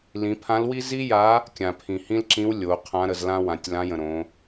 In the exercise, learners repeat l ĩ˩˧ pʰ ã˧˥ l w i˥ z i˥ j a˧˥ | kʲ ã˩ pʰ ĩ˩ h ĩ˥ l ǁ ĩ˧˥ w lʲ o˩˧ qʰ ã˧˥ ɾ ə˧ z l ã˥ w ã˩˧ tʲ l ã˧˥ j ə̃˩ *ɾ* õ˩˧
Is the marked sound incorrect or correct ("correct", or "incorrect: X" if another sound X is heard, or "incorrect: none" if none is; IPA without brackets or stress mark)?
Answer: correct